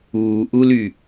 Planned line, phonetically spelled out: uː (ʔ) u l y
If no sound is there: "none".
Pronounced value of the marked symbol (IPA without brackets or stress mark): ʔ